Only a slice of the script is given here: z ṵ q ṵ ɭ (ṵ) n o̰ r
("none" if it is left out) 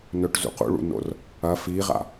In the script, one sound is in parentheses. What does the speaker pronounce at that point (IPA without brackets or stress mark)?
ṵ